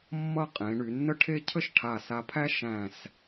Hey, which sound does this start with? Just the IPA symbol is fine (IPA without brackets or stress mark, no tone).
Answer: mː